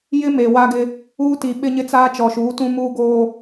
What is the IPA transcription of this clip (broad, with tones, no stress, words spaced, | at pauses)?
jɪ˦ me˨wa˦ ɡɪ˦ | uː˦ti˨ ɓɪ˦ɲɪ˦t͡saː˦ t͡ʃɔ˨ʃuː˨˦tũ˦ muː˦ ɡoː˦